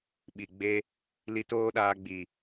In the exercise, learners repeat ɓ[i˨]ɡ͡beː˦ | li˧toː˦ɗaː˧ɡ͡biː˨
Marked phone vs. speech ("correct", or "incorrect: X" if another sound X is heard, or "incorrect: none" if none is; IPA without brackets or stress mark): correct